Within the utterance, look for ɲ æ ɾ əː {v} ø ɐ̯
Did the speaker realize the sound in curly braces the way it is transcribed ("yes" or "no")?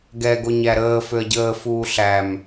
no